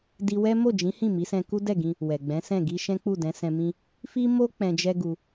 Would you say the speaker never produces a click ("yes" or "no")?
yes